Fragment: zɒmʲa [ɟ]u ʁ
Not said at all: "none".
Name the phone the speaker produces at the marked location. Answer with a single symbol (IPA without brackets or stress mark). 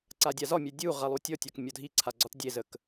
dʲ